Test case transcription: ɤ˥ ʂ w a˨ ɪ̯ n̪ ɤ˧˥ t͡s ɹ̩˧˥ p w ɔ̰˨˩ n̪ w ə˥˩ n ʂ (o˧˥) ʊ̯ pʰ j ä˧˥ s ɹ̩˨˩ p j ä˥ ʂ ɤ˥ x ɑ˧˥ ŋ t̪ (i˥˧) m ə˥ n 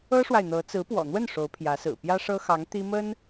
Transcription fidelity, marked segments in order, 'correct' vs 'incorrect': correct, incorrect

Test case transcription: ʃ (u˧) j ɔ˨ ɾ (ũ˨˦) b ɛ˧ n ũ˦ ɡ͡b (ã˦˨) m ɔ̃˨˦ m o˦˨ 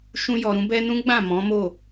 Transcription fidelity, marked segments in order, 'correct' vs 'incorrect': incorrect, correct, correct

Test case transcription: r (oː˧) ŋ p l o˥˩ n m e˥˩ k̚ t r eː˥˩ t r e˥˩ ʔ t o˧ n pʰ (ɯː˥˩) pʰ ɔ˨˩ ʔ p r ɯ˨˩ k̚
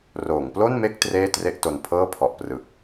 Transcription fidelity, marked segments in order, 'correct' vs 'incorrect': incorrect, incorrect

